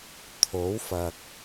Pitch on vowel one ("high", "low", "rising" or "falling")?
rising